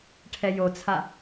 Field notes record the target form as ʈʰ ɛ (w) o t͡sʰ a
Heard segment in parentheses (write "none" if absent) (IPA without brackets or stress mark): j